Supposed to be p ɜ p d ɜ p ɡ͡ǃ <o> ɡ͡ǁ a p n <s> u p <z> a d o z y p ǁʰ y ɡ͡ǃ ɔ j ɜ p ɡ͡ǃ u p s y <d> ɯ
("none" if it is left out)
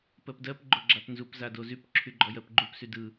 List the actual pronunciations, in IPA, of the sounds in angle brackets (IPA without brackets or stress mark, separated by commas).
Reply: o, z, z, d